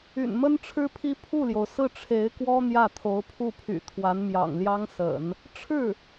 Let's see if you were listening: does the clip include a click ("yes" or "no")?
no